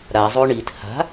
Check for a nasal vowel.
absent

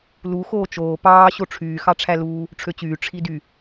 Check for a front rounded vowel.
present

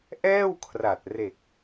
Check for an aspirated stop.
present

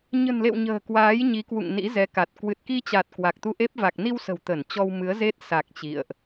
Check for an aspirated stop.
absent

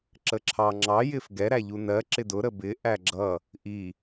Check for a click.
present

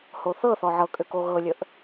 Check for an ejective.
present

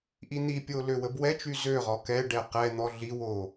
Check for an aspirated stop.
absent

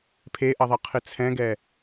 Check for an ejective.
absent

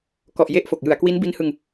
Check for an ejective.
absent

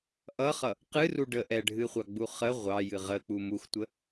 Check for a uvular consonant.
present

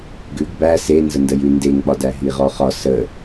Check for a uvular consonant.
present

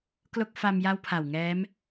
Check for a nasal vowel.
absent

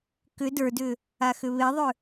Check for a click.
absent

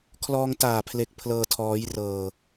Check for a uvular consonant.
absent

